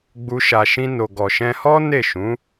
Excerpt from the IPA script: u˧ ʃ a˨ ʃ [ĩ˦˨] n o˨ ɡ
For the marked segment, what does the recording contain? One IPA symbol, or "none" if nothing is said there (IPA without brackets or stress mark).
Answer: ĩ˧